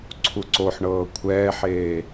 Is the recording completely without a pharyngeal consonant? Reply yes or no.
no